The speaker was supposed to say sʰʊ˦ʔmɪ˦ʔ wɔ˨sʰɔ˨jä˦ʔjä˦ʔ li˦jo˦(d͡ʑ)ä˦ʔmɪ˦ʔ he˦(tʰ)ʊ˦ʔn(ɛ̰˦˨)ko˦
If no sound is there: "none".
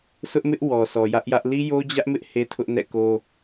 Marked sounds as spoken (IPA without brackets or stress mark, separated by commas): d͡ʑ, tʰ, ɛ̰˦˨